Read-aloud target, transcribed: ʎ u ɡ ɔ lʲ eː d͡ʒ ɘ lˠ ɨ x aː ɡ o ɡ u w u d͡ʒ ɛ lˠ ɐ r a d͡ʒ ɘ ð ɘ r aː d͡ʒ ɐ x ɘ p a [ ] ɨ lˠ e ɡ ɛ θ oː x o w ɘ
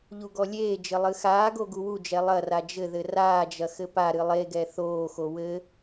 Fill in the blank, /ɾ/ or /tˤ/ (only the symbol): ɾ